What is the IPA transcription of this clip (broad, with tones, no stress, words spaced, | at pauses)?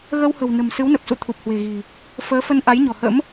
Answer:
ɣə˧whə̤˨˩wnə̤˨˩m sɨ˨˦wnə˨˩p̚sṵ˧˨ t̪ʰu˨˩p̚hwe̤˨˩ɣi̤˨˩ | fəː˨˦fə˧nʔa˨˦jɲɔ̤˨˩ hə̰˧˥m